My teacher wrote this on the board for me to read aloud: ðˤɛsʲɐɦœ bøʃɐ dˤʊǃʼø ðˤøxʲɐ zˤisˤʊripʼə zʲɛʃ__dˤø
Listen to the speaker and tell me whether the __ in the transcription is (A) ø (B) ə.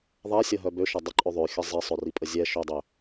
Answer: A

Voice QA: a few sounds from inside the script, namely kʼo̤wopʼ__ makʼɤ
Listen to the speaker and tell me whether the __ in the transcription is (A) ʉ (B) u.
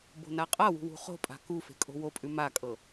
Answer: A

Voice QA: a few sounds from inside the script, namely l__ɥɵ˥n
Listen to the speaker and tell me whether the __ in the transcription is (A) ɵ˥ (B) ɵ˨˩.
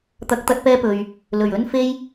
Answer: B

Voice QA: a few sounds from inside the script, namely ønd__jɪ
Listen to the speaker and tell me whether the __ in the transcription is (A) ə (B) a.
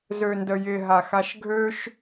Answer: A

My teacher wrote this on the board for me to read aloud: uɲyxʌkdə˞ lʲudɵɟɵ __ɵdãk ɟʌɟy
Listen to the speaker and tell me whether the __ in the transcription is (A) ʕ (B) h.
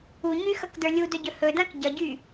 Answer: B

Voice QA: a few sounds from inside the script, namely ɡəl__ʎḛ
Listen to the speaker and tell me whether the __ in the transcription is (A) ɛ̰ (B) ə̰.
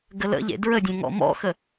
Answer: B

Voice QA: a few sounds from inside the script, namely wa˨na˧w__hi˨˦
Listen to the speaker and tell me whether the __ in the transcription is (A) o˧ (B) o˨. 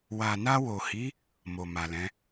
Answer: B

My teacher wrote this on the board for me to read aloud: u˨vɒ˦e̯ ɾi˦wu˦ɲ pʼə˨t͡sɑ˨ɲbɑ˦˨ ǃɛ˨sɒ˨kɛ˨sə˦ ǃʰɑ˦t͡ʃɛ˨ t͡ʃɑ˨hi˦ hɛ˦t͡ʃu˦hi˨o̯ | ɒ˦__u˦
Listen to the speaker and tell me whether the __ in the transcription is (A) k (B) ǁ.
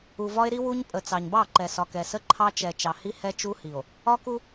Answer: A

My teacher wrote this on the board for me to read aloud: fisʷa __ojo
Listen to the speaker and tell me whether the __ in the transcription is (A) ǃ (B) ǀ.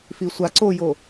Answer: B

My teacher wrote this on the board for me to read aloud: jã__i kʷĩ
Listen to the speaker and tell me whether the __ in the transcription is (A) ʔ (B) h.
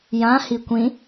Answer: B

